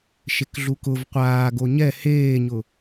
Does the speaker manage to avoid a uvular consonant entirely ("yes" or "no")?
no